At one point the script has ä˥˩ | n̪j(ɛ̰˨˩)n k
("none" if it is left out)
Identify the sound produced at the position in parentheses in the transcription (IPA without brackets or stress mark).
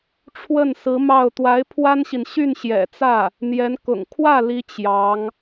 ɛ˧˥